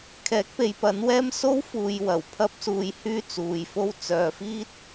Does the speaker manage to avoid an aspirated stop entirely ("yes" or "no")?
no